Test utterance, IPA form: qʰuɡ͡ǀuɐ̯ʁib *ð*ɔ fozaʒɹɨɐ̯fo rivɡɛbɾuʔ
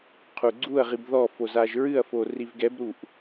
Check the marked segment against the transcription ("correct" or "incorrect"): correct